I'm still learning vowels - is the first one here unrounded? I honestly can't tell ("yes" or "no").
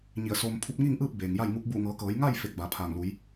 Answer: yes